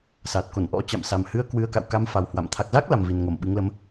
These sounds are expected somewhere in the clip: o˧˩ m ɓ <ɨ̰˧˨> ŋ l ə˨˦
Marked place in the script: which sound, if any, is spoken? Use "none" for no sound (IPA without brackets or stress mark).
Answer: ɨ˨˦